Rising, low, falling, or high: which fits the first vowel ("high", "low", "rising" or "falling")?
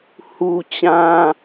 high